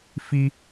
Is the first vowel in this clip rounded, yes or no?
no